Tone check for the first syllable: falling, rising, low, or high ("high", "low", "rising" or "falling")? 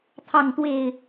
falling